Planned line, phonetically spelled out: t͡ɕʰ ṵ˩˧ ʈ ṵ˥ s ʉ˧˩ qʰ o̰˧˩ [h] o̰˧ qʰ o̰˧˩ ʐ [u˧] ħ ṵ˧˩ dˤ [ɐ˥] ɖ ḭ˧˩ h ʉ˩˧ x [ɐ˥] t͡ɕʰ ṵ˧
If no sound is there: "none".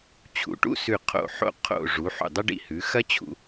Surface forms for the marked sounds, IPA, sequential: ħ, u˩˧, ɐ˥, ɐ˥

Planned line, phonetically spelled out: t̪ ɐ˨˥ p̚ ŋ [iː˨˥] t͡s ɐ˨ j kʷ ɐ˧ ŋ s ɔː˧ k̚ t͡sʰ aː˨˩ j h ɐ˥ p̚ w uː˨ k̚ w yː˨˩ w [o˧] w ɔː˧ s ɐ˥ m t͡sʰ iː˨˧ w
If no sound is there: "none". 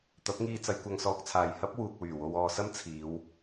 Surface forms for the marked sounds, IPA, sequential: iː˧, o˧

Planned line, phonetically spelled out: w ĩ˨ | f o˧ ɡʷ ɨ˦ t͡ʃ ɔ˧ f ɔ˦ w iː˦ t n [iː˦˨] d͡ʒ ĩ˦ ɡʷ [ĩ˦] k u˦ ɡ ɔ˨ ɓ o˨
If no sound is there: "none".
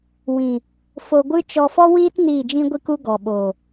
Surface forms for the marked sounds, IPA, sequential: iː˦˨, i˦

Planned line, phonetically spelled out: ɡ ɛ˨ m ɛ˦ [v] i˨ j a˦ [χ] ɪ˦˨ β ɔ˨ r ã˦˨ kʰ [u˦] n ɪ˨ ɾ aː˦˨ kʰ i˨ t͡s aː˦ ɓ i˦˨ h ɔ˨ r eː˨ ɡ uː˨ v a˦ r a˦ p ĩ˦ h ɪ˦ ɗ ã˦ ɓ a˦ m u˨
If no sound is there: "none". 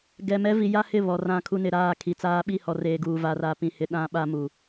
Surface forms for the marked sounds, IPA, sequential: v, h, u˦

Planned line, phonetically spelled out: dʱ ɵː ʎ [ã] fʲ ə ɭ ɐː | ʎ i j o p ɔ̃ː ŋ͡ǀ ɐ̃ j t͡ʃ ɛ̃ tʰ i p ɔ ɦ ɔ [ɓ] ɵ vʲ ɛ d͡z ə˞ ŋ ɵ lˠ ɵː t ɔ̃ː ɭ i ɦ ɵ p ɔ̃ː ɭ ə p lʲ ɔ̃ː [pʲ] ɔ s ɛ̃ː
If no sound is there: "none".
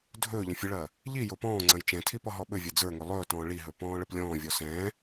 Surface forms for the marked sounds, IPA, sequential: ɐ̃, ɓ, vʲ

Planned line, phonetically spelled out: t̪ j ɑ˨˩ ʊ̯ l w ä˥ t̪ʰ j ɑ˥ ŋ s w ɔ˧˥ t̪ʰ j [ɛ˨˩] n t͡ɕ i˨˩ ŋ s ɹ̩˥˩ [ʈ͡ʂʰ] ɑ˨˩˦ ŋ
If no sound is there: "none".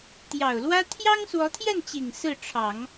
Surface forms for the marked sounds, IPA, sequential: ɛ˥˩, ʈ͡ʂʰ

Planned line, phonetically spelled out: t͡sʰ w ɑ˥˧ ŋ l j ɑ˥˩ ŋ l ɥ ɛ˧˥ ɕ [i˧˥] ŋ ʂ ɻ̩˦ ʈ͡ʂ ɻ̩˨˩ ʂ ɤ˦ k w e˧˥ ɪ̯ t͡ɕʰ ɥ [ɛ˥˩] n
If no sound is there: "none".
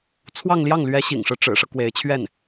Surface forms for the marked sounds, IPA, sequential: ḭ˨˩, ɛ˥˩

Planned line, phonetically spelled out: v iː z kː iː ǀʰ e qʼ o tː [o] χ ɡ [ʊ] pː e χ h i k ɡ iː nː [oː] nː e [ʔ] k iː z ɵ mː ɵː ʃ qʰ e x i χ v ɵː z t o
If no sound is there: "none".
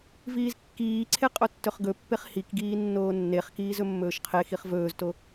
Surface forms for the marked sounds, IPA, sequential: ɵ, ɵ, oː, χ

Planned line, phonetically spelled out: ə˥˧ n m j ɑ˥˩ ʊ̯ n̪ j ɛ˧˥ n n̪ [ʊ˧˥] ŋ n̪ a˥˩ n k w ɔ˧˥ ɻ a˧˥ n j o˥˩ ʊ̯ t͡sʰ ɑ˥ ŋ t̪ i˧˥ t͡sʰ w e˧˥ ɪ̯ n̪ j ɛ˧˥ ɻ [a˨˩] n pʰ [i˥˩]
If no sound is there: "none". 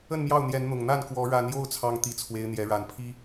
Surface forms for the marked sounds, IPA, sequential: ʊ˨˩, a˨˩, i˥

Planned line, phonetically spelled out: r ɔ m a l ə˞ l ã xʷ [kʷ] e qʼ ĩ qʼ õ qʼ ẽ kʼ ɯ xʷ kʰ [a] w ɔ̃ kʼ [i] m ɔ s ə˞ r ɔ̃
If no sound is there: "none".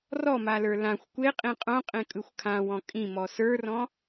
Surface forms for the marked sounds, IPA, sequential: kʷ, ã, ĩ

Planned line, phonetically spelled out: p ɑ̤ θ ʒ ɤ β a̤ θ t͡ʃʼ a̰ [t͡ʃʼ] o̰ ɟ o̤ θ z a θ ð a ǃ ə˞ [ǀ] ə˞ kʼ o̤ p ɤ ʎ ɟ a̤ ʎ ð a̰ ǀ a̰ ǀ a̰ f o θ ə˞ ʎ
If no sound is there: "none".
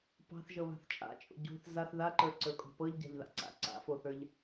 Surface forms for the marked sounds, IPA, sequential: t͡ʃʼ, ǀ

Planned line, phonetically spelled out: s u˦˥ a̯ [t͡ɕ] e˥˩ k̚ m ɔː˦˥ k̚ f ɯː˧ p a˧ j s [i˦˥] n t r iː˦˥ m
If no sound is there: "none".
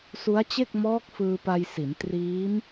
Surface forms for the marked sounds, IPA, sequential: t͡ɕ, i˩˦

